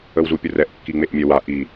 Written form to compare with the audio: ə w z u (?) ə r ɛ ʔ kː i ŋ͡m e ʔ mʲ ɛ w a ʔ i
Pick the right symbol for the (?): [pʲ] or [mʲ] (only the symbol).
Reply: pʲ